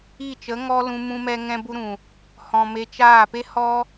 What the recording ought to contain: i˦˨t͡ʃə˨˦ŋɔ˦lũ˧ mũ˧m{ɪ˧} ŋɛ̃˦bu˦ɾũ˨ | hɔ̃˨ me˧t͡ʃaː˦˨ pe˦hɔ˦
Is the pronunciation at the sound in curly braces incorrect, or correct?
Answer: incorrect